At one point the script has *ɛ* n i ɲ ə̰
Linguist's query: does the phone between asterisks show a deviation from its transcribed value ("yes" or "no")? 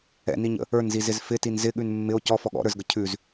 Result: yes